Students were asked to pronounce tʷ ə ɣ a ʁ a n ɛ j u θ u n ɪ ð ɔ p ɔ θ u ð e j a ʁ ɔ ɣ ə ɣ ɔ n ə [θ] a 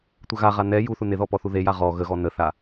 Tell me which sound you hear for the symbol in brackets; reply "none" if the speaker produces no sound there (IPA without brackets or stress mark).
θ